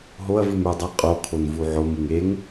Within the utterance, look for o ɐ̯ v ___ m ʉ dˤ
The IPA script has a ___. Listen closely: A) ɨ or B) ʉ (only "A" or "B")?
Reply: A